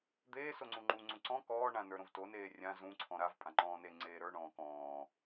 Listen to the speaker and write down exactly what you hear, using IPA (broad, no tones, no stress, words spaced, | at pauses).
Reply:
d̪eː soŋ͡ǀũŋ͡ǃu ŋ͡ǀũǀɔ̃ kɔː ɳãnə˞ɾõvto neːrʲã zũ ǀʰɔ̃ɾav pʼãŋ͡ǃɔ̃ːne ŋ͡ǀeːɾə˞ ɳɔ̃ːkɔ̃ː